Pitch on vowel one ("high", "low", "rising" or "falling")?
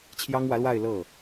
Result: high